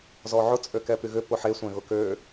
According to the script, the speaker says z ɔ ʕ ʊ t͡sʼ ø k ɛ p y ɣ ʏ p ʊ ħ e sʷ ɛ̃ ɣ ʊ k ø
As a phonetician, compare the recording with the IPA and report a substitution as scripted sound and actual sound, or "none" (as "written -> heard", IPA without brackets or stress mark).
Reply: none